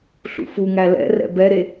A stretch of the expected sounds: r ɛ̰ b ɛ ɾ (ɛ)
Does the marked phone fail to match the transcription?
yes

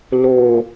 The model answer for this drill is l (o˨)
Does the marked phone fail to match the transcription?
no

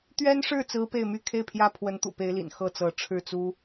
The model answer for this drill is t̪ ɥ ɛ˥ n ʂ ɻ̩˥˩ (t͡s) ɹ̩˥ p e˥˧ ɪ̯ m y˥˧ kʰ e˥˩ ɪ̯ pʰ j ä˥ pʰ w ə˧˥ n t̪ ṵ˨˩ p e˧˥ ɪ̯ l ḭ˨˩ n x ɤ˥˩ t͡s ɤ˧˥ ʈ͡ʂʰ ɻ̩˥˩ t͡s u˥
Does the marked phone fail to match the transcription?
no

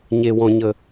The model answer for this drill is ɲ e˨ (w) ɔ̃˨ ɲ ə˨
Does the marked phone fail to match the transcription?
no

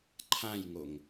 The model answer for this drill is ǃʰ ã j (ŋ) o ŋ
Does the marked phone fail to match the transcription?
no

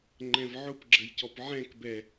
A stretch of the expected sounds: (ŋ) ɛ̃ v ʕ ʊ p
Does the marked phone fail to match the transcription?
yes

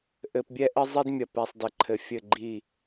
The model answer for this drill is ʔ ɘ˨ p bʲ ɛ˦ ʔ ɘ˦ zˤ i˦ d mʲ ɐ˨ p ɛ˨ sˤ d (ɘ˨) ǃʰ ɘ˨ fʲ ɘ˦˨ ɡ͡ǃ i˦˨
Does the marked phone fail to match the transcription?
no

